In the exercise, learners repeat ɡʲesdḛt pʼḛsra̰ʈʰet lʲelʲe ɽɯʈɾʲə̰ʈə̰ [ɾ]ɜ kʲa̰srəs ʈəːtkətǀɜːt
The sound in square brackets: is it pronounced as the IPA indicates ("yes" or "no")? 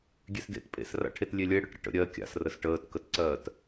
no